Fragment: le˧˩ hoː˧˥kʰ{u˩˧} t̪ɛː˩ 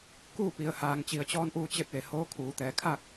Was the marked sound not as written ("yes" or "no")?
yes